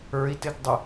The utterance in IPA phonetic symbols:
ə˞ i̯ t ɪ ɡ dˤ ɪ

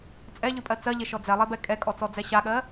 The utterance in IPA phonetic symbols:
t͡sʼ ɛ ʎ ʉ pʼ ɜ t͡s ɜ ʎ e ʃ ɔ d͡z ɛ lˠ e b ɛ kʼ ɛ kʼ ɔ t͡s ɔ d͡z ɛ ɕ a ɠ ɜ

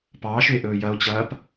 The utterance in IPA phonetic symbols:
p ɑː ʃ ʏ e̯ ʔ ɵː j ɐ o̯ t͡ɕ ɐː p

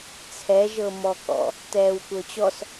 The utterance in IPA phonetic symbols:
t͡sʰ ɛ ʒ ɤ m ɔ k ɔ̰ | t ɛː w kʷ ɤ t͡ɕ ɔ s

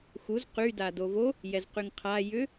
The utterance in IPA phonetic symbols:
x u z q y d a d o v o | j ɛ z q y ŋ qʰ a j ʏ

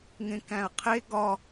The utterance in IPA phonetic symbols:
ŋ ẽ k æ̃ ɐ̯ qʰ e ɡ ɒ

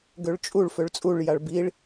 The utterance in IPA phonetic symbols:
ɡ ø ɭ t͡ʃʼ u ɭ f ø ɭ t͡sʼ u ɭ j a ɭ b i ɭ

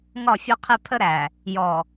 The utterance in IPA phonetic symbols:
ŋ ɒ˦˨ fʲ ɒ˦ qʰ ɛ˦ pʰ ə˦ ɾ æ˨ | j ɔ˨

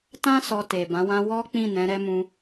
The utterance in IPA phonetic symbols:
t ã˦ s ɔ˧ t e˨ b ã˨˦ w ã˦ w ɔ˦ k͡p ĩ˦˨ n ɛ̃˨˦ ɾ ɛ˦ m ũ˦

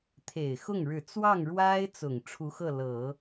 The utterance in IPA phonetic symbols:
t̪ʰ e˨˩ ɪ̯ x ʊ˥˩ ŋ ɻ ɻ̩˨˩ t͡s w ɑ˥˩ ŋ ɻ w a˥ ɪ̯ t͡s ʊ˨˩ ŋ ʈ͡ʂʰ u˧˥ x ɤ˥˩ l ɤ˨˩˦

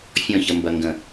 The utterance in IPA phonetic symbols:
fʲ ɔ̃ ç ə m b ɐ ŋ ɡ ə̃

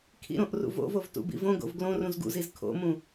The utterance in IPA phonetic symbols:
kʰ ḭ ɾ õ ʔ r ṵ v o̰ v o v t ṵ b ḭ v õ ɡ o̰ v ɡ l õ r ũ z ɡ ṵ z i z kʰ o̰ m ũ

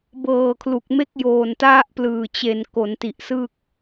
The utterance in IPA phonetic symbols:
b ɤː˨˩ kʰ l u˨˩ k̚ m e˥˩ k̚ j oː˨˩ n t a˥˩ ʔ p l ɯː˨˩ t͡ɕ e˩˦ n k o˩˦ n t i˨˩ ʔ s ɯ˥˩ k̚

